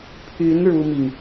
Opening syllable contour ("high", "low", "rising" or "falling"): rising